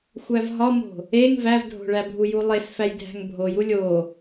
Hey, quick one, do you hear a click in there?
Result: no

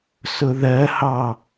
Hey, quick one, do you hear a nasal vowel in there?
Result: no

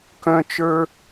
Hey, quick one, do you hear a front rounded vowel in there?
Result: yes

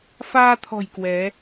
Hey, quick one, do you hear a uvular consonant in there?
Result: no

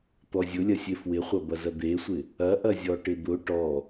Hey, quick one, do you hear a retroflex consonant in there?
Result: yes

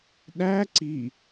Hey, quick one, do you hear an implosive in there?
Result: yes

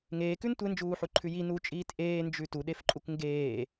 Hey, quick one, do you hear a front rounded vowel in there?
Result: no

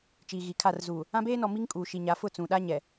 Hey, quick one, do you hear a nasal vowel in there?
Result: yes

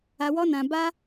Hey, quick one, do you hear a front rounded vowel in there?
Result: no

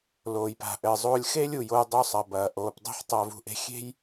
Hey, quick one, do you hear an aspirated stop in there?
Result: no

